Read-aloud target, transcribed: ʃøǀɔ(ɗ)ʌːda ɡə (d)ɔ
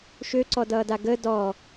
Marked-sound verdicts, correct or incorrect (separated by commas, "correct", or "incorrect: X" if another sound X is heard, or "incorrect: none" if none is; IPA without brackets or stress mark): incorrect: d, correct